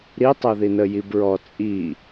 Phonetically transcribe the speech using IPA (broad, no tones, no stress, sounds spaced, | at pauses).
ɾ i tˤ o ð i n ə j i b ɹ ɔ t͡sʼ i